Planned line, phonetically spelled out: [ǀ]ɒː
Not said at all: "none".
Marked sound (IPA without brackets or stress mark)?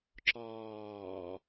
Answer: ǁ